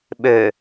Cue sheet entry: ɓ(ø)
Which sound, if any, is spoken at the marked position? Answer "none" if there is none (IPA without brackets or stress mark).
ø